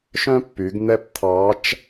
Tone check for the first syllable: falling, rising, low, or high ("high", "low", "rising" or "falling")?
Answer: high